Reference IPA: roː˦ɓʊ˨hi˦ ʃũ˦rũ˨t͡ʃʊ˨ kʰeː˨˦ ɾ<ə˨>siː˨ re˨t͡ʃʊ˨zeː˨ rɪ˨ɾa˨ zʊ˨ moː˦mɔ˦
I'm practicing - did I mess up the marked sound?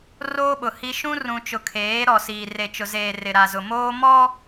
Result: yes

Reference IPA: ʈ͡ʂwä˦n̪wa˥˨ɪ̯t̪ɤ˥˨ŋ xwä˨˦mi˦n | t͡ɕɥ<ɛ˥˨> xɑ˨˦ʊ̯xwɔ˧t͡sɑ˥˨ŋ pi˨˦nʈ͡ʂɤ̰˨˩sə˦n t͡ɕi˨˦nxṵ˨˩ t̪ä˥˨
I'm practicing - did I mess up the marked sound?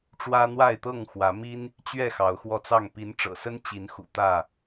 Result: no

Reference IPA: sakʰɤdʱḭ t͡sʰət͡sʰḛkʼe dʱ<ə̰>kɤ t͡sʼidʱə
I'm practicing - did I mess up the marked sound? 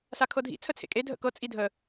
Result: no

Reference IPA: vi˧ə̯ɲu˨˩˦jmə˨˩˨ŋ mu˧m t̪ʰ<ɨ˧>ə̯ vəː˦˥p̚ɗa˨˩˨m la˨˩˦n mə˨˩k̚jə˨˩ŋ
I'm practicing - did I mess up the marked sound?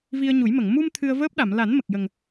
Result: no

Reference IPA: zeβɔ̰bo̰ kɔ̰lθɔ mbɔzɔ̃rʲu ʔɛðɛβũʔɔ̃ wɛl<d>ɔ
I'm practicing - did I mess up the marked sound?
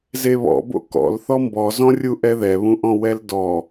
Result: no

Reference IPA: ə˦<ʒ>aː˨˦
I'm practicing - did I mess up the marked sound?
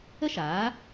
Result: yes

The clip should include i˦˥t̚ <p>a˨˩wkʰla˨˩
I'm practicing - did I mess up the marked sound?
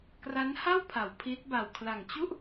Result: yes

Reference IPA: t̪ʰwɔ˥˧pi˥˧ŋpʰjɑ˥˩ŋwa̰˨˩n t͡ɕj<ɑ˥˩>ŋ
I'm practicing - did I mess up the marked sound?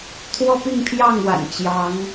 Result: yes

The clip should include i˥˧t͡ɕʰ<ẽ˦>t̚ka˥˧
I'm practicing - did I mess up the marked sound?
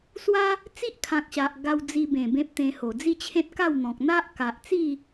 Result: no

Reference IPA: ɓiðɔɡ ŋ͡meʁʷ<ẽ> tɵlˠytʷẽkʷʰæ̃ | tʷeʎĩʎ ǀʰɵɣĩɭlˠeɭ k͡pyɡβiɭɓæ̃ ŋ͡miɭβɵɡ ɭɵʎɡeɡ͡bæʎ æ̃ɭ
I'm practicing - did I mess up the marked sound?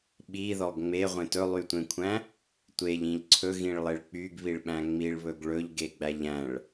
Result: no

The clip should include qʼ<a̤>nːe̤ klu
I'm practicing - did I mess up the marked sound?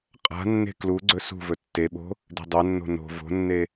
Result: no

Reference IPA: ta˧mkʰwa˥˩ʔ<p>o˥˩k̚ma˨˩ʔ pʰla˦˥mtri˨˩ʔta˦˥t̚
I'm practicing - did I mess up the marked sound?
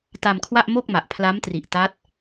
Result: yes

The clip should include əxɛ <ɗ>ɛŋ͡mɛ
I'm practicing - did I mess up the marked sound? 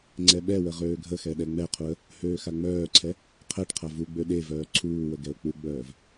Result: no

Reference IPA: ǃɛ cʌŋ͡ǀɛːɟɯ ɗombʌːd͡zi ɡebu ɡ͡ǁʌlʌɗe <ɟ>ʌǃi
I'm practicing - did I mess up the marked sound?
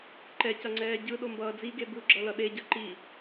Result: no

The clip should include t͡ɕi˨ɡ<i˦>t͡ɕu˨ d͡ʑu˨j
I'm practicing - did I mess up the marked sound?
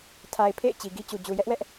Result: no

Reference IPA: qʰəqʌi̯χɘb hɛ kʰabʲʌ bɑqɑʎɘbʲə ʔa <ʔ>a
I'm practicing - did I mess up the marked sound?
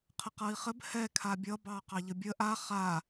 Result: yes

